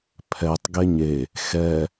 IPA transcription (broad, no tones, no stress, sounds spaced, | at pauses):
pʰ ɛ tˤ ɡ e ɲ e | x ɛ